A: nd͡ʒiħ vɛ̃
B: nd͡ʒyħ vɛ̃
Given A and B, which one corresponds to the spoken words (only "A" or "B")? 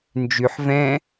B